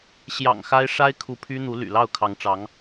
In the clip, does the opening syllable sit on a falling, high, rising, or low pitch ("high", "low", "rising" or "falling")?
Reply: low